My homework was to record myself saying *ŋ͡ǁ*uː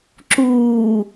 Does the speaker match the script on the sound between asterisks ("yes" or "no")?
no